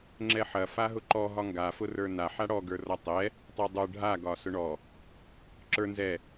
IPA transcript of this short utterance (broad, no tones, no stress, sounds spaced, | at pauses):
ŋ͡ǁ ɛ ħ ɐ f a ɦ ʊ ǃ ɔ ɦ ɒ ŋ ɡ a f ʊ r ə˞ n a ħ a ɽ ɔ ɡ ə˞ r ɒ tˤ ɛ | tˤ ə˞ dˤ ə˞ ɖʱ a ɡ ɒ s ʊ ɳ ɔ | ǁ ə˞ n z ɛ